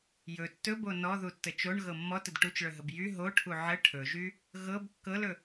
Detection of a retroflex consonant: present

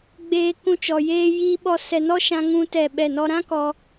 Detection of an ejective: absent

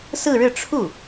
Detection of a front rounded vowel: absent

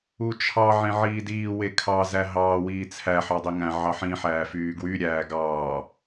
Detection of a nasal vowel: present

